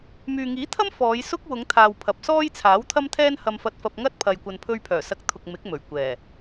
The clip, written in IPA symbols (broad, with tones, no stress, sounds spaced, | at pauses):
m yː˨ ŋ iː˨˥ t̪ʰ ɐ˥ m f ɔː˨˧ j s ʊ˥ k̚ w ʊ˨˧ ŋ t̪ʰ aː˨ w pʰ ɐ˨ p̚ s ɔː˥ j t͡sʰ aː˨˥ w t̪ʰ ɐ˥ m t̪ʰ ɛː˥ n h ɐ˧ m f ɐ˧ t̚ f ɐ˧ p̚ ŋ ɐ˥ t̚ pʰ ɐ˨ j kʷ ɐ˨ n pʰ ɵ˧ ɥ pʰ œː˨˩ s ɐ˧ k̚ t̪ʰ ʊ˨ k̚ m ɪ˨˥ k̚ m ɵ˨˩ ɥ kʷ ɛː˨˩